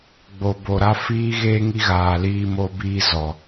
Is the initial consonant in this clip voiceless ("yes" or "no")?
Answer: no